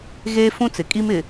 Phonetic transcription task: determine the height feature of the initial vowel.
mid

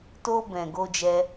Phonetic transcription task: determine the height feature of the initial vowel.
mid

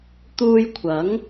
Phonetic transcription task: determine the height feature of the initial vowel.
high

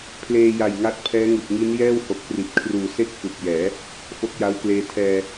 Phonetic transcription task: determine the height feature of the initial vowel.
mid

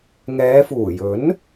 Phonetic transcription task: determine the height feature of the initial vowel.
mid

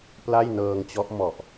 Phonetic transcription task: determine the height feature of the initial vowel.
low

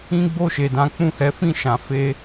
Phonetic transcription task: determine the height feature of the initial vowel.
high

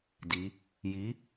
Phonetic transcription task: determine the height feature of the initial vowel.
high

